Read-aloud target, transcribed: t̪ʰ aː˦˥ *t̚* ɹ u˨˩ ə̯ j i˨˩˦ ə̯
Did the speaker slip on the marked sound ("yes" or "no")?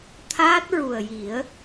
no